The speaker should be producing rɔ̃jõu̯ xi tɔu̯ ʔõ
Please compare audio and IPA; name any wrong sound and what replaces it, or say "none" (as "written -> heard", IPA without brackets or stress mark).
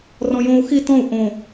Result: ɔ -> ɔ̃